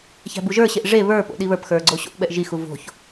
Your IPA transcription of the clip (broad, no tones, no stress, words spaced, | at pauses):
çæ̤buʒə˞ɕeʔ ʐe βə˞po̰ ɗiβə˞pxə˞ ɡ͡ǀoɕo̰ʔɓɛʔ ʒixu vo̤ç